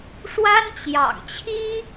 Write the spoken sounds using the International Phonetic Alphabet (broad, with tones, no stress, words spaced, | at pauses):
ʂwa˥nt͡ɕjɑ̰˨˩ŋt͡ɕʰi˥